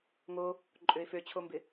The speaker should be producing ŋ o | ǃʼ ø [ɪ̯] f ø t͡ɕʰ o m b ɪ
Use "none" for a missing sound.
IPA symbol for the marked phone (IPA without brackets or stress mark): ɪ̯